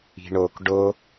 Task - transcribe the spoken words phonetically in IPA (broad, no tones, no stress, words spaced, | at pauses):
i̤ɳok ɖo